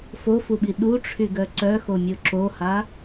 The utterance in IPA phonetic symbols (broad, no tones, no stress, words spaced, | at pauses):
fofuɓi ɗuʈ͡ʂʰyɡœ ǀœxomʲo ǁoha